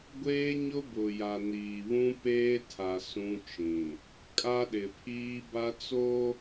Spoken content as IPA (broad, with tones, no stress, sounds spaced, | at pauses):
ɡʷ eː˦ ɲ ʊ˦ b ʊ˨ j a˨ n iː˨ β ũ˦ p eː˦ tʰ a˨ s ũ˦ t͡ʃ ĩ˨ | kʼ a˦ ɗ ɪ˨ pʰ iː˦ b a˦ t͡s o˦